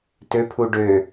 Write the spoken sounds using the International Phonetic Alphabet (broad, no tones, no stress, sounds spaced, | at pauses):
t ø pʰ u ɖ ø